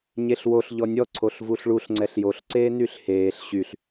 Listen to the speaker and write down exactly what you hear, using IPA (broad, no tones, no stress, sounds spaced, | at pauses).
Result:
ɲ e ɬ w o ɬ ʎ ɔ nʲ ɔ ǀʰ o ɬ v u ɬ ɭ u ɬ ŋ͡ǀ ɛ ɬ j o ɬ ǀ eː n y ɬ h eː ɬ ɕ y ɬ